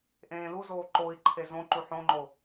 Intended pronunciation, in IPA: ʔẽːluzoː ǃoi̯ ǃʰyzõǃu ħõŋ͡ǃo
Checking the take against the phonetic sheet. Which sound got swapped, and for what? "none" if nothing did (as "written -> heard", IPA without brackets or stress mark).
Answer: y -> e